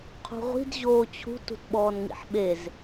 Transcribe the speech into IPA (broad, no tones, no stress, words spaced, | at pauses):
qʰṳʁʷi̤d ʑoːt͡ɕʰṳt ṳtɓɔːnŋḭħɓez